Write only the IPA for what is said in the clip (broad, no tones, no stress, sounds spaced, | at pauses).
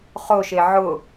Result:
χ o ʃ e ʕ ʊ